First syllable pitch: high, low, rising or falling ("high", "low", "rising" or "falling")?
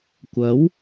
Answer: rising